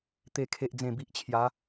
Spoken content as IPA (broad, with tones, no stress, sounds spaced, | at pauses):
t̪ e˨˩ kʰ e˨ ʔ d͡z ẽ˨˩ b i˨ ʔ t͡ɕʰ j a˨˦